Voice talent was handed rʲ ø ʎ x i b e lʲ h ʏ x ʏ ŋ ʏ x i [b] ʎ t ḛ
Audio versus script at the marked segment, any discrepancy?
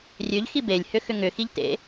yes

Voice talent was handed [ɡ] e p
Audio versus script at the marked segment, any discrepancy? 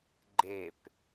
yes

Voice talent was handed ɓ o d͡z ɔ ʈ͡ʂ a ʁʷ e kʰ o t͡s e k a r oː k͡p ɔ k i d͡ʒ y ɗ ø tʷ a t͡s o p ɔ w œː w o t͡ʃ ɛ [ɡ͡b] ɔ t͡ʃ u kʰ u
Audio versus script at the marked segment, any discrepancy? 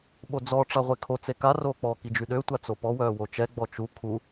no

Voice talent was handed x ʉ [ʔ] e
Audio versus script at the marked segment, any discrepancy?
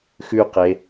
yes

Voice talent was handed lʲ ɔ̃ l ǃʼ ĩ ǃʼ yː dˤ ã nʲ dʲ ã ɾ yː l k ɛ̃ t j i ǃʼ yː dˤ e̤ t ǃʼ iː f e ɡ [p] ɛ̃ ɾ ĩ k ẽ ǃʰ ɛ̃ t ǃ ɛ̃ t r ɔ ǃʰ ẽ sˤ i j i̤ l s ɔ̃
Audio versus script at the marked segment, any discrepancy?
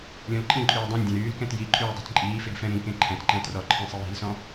yes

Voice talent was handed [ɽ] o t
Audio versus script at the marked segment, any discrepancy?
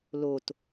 yes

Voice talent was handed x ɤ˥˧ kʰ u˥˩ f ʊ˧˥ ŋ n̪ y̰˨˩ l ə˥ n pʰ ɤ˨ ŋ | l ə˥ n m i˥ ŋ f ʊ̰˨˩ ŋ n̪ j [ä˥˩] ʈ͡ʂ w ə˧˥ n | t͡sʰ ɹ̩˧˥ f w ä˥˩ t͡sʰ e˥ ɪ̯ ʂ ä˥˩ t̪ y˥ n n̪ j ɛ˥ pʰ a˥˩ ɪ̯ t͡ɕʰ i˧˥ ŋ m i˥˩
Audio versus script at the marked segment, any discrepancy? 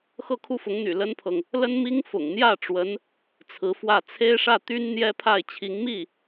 no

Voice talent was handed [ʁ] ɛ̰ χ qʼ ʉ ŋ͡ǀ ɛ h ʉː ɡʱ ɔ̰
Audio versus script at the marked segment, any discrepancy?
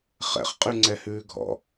yes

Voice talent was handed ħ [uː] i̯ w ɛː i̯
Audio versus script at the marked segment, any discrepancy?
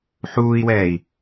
no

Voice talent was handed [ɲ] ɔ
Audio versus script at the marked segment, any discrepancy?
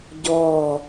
yes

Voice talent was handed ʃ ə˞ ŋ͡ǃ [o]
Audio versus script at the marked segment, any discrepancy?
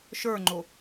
no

